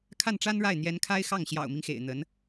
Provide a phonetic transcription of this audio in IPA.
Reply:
kʰa˥˩nʈ͡ʂa˥nɻa˥˩ɪ̯ n̪jɛ˧˥nkʰa˥ɪ̯xɑ˥˩ŋ ɕjɑ̰˨˩ʊ̯mi˦ŋxḛ˨˩ɪ̯ n̪ə˧˥n

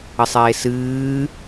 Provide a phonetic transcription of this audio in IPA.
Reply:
ɘsˤeːsɨː

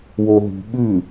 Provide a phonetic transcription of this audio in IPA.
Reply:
woɦṳ ɓʉ

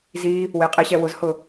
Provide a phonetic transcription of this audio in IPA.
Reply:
zi | wɪːqʼiɕɛ wʊzhʊ

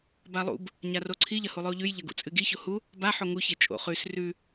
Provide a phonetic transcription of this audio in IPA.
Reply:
balˠṵb | ɲaroǀʰi ʎɐhulˠʉo̯ʎʉj ʎɐɡṵt͡sʼɨɡi çohu | ba ħoŋu çet͡ʃʼo̰ χʉs rʉ

